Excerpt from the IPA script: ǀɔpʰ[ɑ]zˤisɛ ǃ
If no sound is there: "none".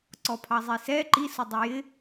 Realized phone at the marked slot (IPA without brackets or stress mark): ɑ